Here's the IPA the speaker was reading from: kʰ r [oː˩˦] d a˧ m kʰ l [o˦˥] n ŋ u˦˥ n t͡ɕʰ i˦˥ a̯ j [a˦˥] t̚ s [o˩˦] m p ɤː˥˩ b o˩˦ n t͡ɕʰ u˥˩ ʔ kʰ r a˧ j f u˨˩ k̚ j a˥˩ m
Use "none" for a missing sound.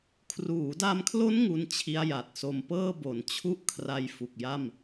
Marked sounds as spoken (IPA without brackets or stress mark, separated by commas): uː˩˦, o˦˥, a˨˩, o˧